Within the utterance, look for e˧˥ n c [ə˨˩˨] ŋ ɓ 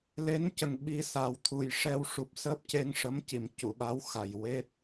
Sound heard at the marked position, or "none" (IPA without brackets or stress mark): ə˨˩